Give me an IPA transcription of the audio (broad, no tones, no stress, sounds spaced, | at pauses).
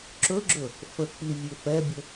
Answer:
ǁ ɵ ɡ͡ǁ ɵ | f ə k͡p i vʲ ɵ f ɛ bʲ ə